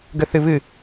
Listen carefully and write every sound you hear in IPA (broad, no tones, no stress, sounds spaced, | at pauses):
ɡ ə θ ɨ β ɨ